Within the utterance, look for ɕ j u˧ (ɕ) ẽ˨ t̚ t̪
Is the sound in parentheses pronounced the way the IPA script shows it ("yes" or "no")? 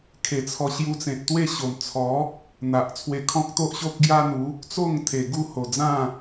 no